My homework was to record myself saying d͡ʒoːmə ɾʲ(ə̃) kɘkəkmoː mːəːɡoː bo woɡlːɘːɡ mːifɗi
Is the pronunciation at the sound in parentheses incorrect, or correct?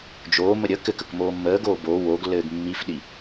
incorrect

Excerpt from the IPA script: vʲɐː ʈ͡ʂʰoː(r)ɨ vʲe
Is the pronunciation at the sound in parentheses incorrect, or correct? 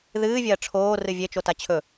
correct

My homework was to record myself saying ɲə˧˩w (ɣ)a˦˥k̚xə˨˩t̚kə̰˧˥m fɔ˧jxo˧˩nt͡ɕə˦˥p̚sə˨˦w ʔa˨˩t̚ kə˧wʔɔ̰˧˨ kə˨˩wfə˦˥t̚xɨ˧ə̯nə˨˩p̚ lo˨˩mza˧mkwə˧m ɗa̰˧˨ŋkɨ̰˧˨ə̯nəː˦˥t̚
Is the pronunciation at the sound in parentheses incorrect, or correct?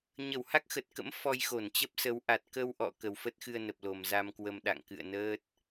incorrect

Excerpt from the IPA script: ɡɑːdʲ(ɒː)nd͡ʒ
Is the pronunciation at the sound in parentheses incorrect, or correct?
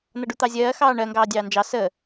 incorrect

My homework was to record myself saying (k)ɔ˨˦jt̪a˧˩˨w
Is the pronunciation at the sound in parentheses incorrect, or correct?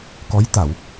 correct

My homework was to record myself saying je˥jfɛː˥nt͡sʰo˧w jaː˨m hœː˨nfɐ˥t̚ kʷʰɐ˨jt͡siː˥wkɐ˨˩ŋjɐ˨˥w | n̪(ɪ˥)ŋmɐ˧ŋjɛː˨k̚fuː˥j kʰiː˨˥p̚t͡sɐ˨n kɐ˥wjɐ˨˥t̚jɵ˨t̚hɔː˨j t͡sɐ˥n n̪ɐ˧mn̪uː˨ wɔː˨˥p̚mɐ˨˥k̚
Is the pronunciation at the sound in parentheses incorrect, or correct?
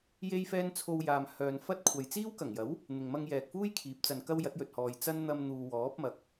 incorrect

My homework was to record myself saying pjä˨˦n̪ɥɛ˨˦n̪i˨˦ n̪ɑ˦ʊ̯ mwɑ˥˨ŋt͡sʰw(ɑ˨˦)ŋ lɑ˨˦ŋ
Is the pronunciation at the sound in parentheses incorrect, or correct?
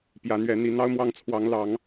correct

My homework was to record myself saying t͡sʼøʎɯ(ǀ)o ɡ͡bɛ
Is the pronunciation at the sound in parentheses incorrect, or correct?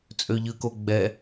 incorrect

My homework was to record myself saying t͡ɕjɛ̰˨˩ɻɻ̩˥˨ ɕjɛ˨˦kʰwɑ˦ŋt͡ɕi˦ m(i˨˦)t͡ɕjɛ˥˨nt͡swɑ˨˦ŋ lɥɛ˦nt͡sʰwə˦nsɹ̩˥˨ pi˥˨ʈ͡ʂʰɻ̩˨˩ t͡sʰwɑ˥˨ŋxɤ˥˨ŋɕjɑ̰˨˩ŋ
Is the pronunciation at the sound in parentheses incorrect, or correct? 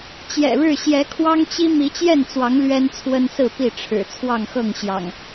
correct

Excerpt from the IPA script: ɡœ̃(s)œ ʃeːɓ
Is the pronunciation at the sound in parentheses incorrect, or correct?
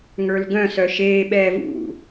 correct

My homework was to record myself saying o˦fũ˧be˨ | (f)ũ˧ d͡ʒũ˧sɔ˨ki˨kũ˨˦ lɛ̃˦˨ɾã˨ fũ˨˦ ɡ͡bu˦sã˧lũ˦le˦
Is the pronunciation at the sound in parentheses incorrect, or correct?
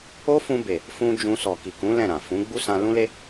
correct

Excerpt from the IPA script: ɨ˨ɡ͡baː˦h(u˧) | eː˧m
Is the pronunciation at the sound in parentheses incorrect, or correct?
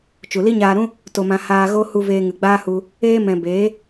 correct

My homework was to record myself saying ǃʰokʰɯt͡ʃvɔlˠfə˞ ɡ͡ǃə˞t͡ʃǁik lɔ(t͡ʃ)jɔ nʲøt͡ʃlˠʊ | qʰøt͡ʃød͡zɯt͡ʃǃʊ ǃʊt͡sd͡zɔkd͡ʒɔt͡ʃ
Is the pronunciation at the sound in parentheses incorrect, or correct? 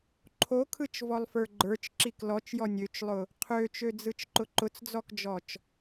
correct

